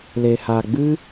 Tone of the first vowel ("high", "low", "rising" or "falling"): low